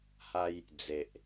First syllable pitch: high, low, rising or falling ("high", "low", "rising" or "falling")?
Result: high